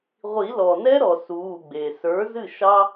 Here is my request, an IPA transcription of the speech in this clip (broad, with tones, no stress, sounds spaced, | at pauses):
ʁʷ i˨˩˦ l ɔ˩ n ɛ˥ ɾ ɔ˩ s uː˩˧˩ ɡ͡b e˩ s ə˞˩˥ z ɨ˥˩ ʃ ɑ˥